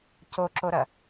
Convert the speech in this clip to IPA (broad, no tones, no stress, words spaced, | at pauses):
coǁoɾɐ